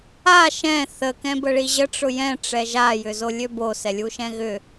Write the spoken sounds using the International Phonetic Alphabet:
a ʃ ɛ̃ θ ə k ɛ̃ b ə ɭ i ʑ ə ʈ͡ʂ ʊ j ɛ̃ ʈ͡ʂ ɛ ʒ a j ʏ z o lʲ ø b o s ɛ lʲ u ʃ ɛ̃ ɣ ʏ

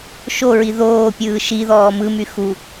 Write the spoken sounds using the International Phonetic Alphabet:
ʃ o ɹ i ð oː pʲ ɯː ʃ i ð ɔː m ɯ m y x u

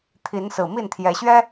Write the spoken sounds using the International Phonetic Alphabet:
t̪ʰ i˨˦ n s ɹ̩˨˩ m i˥˨ n t̪ʰ j ɛ˨˦ ɕ ɥ ɛ˦

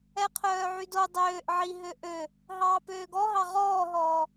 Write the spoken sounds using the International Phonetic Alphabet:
ɛ qʰ œː ʕ y d o dˤ øː ʔ ʕ i ɦ ø ʔ ø | ɦ ɑː p øː ɡ ɔ ɦ ɑ ʁ ɔː ɦ ɔː

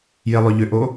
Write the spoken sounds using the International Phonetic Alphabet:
j e lˠ ʏ ʎ ʏ ʔ o

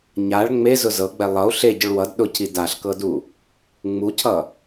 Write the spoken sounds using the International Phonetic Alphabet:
ɲ a ɭ ŋ͡m e z ʊ z ɤ ɡ͡b ɛ lˠ ʌ u̯ ɬ e ɟ ʊ ɭ w ʌ d ɗ ʊ cʰ i d a ɬ k ɤ d u | ŋ͡m u cʰ ʌ

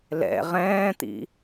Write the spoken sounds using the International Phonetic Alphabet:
l ɛ̰ ʁ ɛ̃ː t̪ ḭ

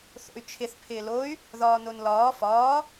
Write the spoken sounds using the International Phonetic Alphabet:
θ o̰ y̯ t͡ʃʰ ɪ θ pʰ ɪː l o y̯ | ð ɒː n o n l ɒː f ɒː

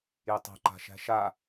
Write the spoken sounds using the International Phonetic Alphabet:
j e tˤ a̤ ǃ a̤ ʃ æ̤ ʃ a

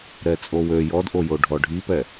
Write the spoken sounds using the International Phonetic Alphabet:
ɾ ɛ t͡sʼ o w ø j ɔ d ʔ o j o ɖʱ ɔ ɖʱ i p ɛ

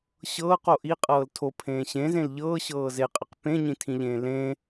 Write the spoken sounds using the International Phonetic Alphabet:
ɕ ɤː q o ʔ i qʼ ɤː l tʰ o pʰ ẽː ɕ ẽ z ẽ l ʎ ɤː ɕ ɤː z e qʼ ɪ q p ẽ ɲ ĩ tʰ ĩ ʎ ẽː l ẽ

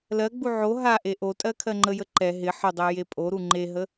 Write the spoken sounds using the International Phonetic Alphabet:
l ɜ ɡ͡b u ʕ o ɦ a ʔ e ʔ o tʼ ɜ kʰ ɜ ŋ͡ǃ ə j ə ǃ ɛ ɦ ɪ ħ ə dˤ e j e pʼ o ɾ u ŋ͡ǃ e ɦ ə

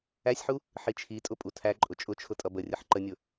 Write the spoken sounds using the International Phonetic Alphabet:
æ sʲ ħ u | ħ i t͡ʃʰ i tʼ ʊ pʼ u tʰ æ ǃʼ ʊ t͡ʃʼ ʊ t͡ʃʰ ʊ tʼ ʌ b ə rʲ ə ħ ǃ ə nʲ ʊ

